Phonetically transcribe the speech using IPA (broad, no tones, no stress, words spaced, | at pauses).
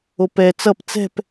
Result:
opɛ t͡sʌp t͡sɛ̤p